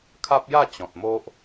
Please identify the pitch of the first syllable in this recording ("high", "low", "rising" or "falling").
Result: high